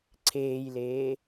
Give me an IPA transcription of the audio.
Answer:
ǀʰ eː j l eː

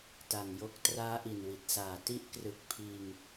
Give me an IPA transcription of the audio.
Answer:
t a˨˩ ŋ j o˦˥ k̚ t r aː˦˥ ʔ i˨˩ n w i˨˩ t̚ s aː˨˩ t i˦˥ ʔ k r ɯ˨˩ k̚ pʰ iː˧ ŋ

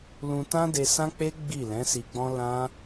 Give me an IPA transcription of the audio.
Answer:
l ũ˧ t ã˦ d e˧ s ã˦ k͡p e˦ ɡ͡b i˦˨ l ɛ̃˨˦ s i˧ ɡ͡b ɔ̃˦ l ã˦

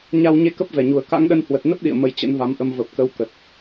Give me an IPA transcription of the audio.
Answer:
ɲ a˧ w ɲ e˧ k ə˦˥ p̚ v ɛ˧˩ ɲ u˨˩ ə̯ k a̰˧˥ ŋ ɗ ə˧ n h w ə˨˩ t̚ n ə˦˥ p̚ ɗ ḭ˧˨ ə̯ m ə˧ j t͡ɕ ə̰˧˥ n v a˨˦ m ʔ ə˧ m v ə˨˩ p̚ k ə˨˦ w k ə˨˩ t̚

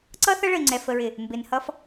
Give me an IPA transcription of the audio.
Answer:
ǀ ʌ˦ θ ʌ˦ ɭ ə˨ i̯ ŋ͡ǀ ɛ˨ f ə˨ ɹ ɪ˨ | m b ɪ˨ n h ʌ˦ f

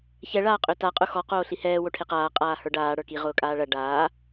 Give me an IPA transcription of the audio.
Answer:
ç ɛ ɭ aː qʼ ø t a qʼ ʊ x ɔ q oː ɬ i h ɛː w o ʈʰ e q aː qʼ aː h ə˞ ɖ aː ɽ ə˞ k i ʁ ʊː kʼ aː ɭ ɐ ɖ aː

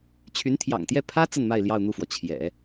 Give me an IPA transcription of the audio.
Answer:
t͡ɕʰ y˧˥ n t̪ʰ j ɑ̰˨˩ ŋ t̪ j ɛ˥˩ pʰ ä˥ t͡s ə˥˧ n m a˥˧ ɪ̯ l j ɑ˥˧ ʊ̯ n̪ u˥˩ f w ɔ˩ t͡ɕʰ j ɛ̰˨˩˦

